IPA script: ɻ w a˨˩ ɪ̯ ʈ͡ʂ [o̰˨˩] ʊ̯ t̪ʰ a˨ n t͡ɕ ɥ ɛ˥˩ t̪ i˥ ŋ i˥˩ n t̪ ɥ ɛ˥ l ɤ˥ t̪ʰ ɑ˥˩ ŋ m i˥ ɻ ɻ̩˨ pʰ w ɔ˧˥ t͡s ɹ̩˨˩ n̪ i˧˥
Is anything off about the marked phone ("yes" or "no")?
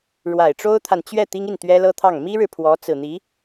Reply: yes